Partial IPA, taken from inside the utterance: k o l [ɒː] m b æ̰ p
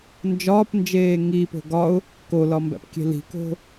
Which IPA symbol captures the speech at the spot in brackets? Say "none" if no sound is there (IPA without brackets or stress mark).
ɒ